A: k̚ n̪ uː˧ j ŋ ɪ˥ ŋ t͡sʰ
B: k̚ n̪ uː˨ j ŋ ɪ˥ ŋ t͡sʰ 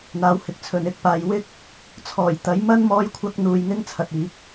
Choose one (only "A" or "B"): A